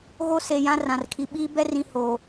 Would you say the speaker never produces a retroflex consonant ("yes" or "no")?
yes